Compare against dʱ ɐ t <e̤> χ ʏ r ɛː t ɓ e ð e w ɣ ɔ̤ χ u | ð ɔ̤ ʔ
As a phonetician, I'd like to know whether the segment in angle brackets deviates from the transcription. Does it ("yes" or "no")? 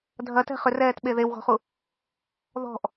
yes